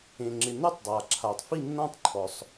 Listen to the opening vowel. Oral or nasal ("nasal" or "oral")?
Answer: nasal